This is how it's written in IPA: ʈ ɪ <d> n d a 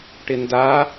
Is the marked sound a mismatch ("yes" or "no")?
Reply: yes